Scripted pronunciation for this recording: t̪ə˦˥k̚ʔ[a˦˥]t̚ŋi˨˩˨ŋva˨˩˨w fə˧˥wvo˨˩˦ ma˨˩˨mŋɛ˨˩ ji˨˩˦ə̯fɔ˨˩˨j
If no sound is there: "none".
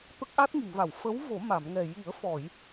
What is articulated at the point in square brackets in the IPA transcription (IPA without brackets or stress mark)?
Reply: a˦˥